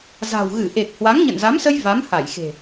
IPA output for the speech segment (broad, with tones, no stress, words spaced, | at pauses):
za̤˨˩w ɣɨ˧˩ʔe˨˩k̚ hwa˨˦ŋɲə̰˧˨nza˨˦msə˧j va˨˦mha˧˩j xe̤˨˩